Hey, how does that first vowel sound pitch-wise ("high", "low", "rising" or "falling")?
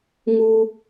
high